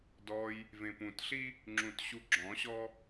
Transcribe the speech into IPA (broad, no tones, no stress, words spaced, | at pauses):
dɔj | vẽpũtɬi | ŋ͡ǁũtɕuɡ͡ǁɔ̃ɕɔ